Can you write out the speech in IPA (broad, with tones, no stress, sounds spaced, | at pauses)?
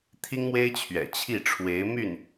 t̪ʰ i˥ ŋ m w e˥ ɪ̯ t͡ɕʰ ɥ ɛ̰˨˩ t͡ɕʰ i˥˩ ʈ͡ʂʰ w e˧˥ ɪ̯ m y˥˩ n